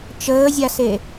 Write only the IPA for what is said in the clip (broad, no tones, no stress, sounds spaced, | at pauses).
t͡ʃ əː zʲ a s e